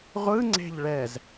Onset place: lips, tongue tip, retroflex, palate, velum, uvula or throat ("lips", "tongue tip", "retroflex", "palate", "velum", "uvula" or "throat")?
uvula